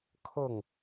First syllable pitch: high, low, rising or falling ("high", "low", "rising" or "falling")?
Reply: falling